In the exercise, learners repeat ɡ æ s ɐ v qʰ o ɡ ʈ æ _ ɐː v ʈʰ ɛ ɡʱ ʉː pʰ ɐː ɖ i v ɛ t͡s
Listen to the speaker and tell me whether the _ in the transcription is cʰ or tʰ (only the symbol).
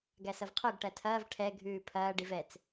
tʰ